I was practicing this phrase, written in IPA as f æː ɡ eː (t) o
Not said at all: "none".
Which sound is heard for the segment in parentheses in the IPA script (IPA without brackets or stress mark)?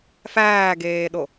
ɗ